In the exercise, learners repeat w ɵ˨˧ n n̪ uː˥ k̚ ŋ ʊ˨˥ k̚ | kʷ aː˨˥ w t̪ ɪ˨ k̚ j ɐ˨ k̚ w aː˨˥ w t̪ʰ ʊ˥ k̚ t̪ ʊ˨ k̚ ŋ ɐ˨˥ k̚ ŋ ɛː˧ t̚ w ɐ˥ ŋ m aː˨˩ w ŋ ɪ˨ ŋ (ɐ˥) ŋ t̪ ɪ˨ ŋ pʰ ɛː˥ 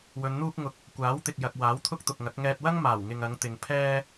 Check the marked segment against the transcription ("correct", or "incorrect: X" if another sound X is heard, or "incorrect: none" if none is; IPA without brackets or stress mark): incorrect: ɐ˨˧